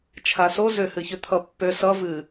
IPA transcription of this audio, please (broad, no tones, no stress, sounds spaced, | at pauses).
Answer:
t͡ʃʰ a s o z ʏ h ɨ ç ʏ t̪ʰ ʌ pː ø s ʌ v ɨ